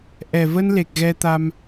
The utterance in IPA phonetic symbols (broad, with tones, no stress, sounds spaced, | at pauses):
ʔ ɛ˨˩ v ə˧ n l e˨˩ k̚ ɣ ɛ˧ t̪ a˧ m